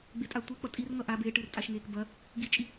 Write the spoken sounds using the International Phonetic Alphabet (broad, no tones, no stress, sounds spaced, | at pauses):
ɡ͡b e tʼ a tʷ e k͡p ʌ tʼ i r ŋ ʌ ʔ a b eː ʈ ɨː r tʼ a ʃ ŋ eː k b ɐ | ɡ i t͡ʃʼ i